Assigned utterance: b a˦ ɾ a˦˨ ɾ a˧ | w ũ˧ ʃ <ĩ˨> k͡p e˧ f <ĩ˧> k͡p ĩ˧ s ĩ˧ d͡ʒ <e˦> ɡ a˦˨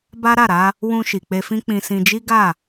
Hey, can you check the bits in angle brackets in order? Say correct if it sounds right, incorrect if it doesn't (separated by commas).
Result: incorrect, incorrect, incorrect